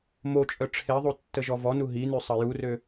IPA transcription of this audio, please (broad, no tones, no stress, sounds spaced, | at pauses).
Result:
m o t͡ʃʼ œ ʈ͡ʂʰ e ðˤ u tː ə ʒ ɔ v ɔ n u ɦ i n y sˤ ə j u r ø